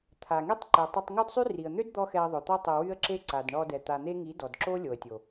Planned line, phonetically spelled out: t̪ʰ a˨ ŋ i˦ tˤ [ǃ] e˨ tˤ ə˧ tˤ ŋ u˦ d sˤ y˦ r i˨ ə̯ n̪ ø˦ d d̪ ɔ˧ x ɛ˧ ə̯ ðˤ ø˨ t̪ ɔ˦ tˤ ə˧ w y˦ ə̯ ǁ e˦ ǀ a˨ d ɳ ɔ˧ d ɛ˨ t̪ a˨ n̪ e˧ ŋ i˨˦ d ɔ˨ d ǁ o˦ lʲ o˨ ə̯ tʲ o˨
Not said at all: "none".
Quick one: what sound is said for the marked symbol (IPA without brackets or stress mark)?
ǃ